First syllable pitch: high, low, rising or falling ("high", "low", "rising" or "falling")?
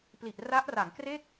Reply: low